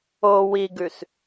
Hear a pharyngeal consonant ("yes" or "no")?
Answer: no